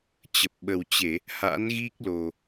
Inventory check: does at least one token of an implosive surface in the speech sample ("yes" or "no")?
yes